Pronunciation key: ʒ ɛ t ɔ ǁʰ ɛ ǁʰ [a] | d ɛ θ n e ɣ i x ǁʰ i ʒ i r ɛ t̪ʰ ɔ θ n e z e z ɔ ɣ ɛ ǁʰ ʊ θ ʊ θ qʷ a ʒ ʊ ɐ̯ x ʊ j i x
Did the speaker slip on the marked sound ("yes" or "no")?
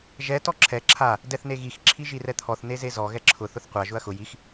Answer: no